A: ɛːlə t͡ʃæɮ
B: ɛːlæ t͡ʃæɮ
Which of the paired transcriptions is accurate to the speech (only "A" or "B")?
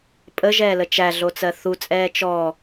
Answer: A